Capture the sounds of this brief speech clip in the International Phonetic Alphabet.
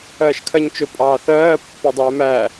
ɜːʃkʰɜɲt͡ʃʊ pʼɑːθɜː pːɔdˤɛːmæː

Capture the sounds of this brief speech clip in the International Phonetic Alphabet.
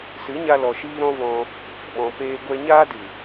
sɨ˨˦ ɲa˦lɔ˧ʃiː˦ ɾɔ̃˦vɔ̃˧ | ɓɔ̃˨peː˧ ɡʷɛ˧ ɲaː˦dɨ˨

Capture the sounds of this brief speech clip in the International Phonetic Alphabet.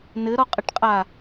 nɘɾɔqʼɘʈqʼa

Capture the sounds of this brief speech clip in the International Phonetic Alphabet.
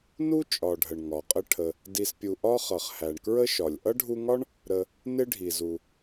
nu˥ t͡ʃʼɒ˨ɖʱə˩ɳ ŋɒ˩qʼə˦ ʈʰə˩ | di˨spʲu˨ ʔɒ˥χʌ˩χ hæ˩ɳkɹə˦ʃɒ˩lʲ ʔʌ˥ɖʱu˦ŋɒ˥ɳ | ɾə˨ | nɪ˥ɖʱi˩zu˩

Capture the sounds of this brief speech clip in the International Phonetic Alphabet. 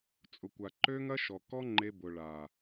t͡sʼʊ˨kʷa˨ǃø˦ŋɐ˦ ʃɔ˨ kɔ˦ŋ͡ǃe˧bʊ˨ɭa˨

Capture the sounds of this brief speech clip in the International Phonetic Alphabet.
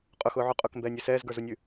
qʼʊxʊːʕʉ qʼʊkmbɛːnʲø sɛːzɡə˞zunʲʉ

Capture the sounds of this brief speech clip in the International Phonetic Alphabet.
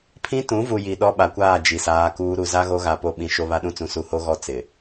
pʰĩ˦tũ˨˦vu˨ ji˨ ɗɔ˦ɓa˨kʷaː˦˨ d͡ʒi˨saː˦kuː˦ ɾu˨za˦ɣo˦ɣa˨ po˨ɓĩ˨ ʃo˦βa˦ɗũ˦t͡sũ˨ su˨ho˦ɣɔ˦ t͡sɪ˨

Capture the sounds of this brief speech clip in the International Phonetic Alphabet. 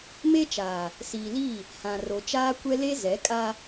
me˦t͡ʃaː˨ | siː˨liː˦˨ | hã˨ro˨t͡ʃaː˦kʷɛ˦ le˦ zɛ˨˦kʼa˦

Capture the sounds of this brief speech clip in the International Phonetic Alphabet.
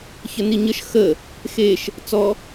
çəniɲəʃ xə | xeʃ | t͡sɔ

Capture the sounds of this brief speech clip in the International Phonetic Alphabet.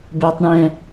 bɛ˦tˤ ɳɛ̃˦

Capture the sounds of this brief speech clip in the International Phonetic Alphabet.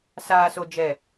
saː˨so˨d͡ʒɛ˨

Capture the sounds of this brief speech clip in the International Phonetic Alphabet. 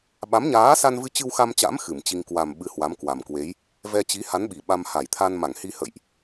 ɓa˨˦mɲaː˨˦sa˧nvɨ˧ t͡ɕɨ˧wxa˧mt͡ɕa̰˧˥m xɨ˧˩mt͡ɕi˧ŋ kwa˨˩m ɓɨ˧hwa˨˦mkwa˨˩mkwe˨˦j | vɛ˧t͡ɕi˨˦ha˨˦n ɓi˧˩ɓa˧m ha˧˩jt̪ʰa˧n ma˧˩ŋhi˧hə̰˧˨jʔ

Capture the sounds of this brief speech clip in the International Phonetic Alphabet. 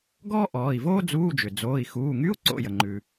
ɡɔː˥ ʔɔː˩˧˩i̯voː˥ d͡zuː˧˥˧d͡ʒʏ˩ d͡zoː˩˧˩i̯xuː˩˧˩ŋy˧˥˧u̯ ǀo̰˩˧˩ jə˩ŋ͡ǃʉ˩

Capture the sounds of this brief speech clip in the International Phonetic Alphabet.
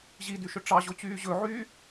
ʑidyʃɵ ʈ͡ʂɑʑot͡ɕyː ʑɵʕyː

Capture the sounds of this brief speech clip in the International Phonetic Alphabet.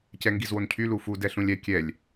cɛŋɡizwoncʰy lufu dɛɬũlʲɛ kʲɛlʲ

